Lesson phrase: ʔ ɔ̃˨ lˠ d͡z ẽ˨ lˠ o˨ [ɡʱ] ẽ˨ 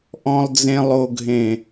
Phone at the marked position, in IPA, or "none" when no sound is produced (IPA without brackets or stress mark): ɡʱ